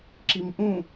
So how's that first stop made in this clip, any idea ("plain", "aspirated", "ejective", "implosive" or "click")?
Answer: click